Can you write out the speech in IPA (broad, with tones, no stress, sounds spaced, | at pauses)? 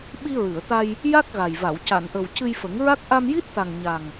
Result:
ɓ i˧ ɹ ɨ˨˩˨ ə̯ t̪ a˧ j | j a˦˥ k̚ ɣ a˨˩ j v a˨˩˨ w c a˨˩˨ n ʔ ə˨˩ w c ɨ˧ j f ə˨˩˦ ŋ ɹ a˦˥ k̚ ʔ a˧ m j i˦˥ t̚ t̪ a˨˩ ŋ ɲ a˨˩ ŋ